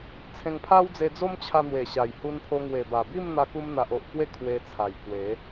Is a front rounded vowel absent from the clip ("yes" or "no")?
yes